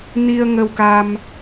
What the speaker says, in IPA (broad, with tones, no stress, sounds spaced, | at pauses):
n i˧ ə̯ ŋ ə˧ w k a˧ m